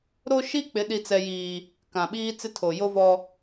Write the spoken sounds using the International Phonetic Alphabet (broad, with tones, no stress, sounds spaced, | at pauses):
ɾ o˦ ʃ i˦ k͡p ɪ˨˦ ɗ i˦ t͡s ɛ˦ j iː˦ | k ã˨ ɓ iː˦ t͡s ɪ˦ tʰ o˨ j o˦ v ɔ˦